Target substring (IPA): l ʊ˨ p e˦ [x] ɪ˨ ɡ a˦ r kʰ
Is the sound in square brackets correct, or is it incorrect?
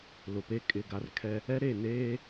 incorrect